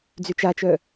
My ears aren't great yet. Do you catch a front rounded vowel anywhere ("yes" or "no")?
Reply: yes